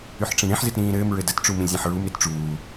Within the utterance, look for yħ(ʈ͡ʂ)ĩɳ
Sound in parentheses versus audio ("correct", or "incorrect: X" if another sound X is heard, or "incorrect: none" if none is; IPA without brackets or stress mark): correct